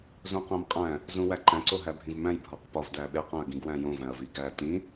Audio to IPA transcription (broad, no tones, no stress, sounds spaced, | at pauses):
z õ q æ̃ m qʼ æ̃ | z ũ w æ ǃ æ̃ ǀ o ɦ æ bʱ ĩ v m æ̃ j bʱ ɒ q p ɒ v d æ ɓ e q æ̃ ɐ̯ ɡ ĩ ɡ w æ̃ j õ v æ̃ ɐ̯ v i ɡ æ t ĩ